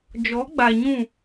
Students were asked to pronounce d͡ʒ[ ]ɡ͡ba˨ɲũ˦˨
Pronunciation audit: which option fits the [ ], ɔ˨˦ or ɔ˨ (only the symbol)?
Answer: ɔ˨˦